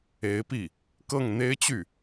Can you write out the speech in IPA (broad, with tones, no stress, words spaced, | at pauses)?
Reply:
e˧˥ɪ̯pi˥˩ | kɤ˥˩ŋn̪e˥ɪ̯t͡ɕy˥˩